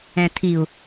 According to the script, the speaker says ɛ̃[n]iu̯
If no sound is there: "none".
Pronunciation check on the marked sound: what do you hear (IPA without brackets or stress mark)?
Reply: tʰ